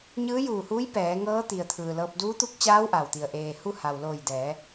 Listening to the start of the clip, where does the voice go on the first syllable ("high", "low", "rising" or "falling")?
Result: rising